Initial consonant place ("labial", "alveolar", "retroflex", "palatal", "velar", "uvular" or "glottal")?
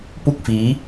labial